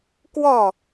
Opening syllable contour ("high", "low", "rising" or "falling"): falling